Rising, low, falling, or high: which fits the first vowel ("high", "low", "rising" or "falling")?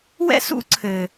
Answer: high